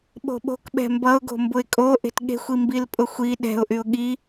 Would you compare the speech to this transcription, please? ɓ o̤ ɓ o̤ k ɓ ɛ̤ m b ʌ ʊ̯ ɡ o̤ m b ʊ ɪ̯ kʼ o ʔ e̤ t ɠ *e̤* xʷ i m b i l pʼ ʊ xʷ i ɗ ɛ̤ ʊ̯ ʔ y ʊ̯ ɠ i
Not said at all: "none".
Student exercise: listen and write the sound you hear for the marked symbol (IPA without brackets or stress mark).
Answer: e̤